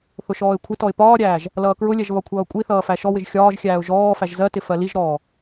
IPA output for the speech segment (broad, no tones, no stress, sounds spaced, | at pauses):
θ ʊ ʃ ɔː ɪ̯ kʷʰ ɪ t ɔ ɪ̯ p ɒː ɾʲ æː ʒ | l ʌː k ɹ ʊ lʲ ɛ ʒ β ɒ kʷʰ ʌː kʷʼ i θ ʌː f æ ʃ ɔ w ɪ ʒ xʲ ɒː ʒ xʲ æː ʊ̯ ʒ ɔː f æ ʒ z ɜ t ɪ f ɜ l i ʒ ɾ ɔː